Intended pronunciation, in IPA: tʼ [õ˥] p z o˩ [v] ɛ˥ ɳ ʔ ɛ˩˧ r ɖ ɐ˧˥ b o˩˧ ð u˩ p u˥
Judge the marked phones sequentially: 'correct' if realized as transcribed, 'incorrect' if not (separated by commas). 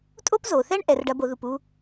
incorrect, incorrect